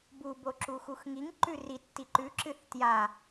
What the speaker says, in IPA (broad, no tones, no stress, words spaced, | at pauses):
bu boǁuxuxŋiŋ ǃʉri tːiǃʉ ǁɨθtja